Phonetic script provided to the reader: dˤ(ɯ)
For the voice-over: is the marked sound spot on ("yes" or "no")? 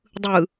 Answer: yes